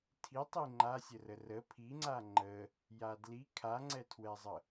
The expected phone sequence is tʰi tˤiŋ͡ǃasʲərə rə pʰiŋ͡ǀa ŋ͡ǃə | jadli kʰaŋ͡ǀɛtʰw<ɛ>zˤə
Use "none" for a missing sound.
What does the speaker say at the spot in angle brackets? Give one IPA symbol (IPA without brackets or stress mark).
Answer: ɛ